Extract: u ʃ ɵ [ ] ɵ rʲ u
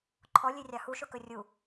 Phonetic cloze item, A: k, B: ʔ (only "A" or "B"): A